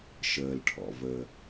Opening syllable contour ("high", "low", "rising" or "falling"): low